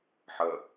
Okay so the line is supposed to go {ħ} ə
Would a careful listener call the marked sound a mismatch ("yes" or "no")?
no